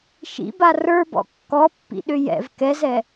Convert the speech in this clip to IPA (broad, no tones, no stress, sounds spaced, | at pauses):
ʃ ḭ b a r ə˞ b ɔ̰ kː ɔ pː ḭ ɗ ʏ j ɛ̰ v k ɛ z ɛ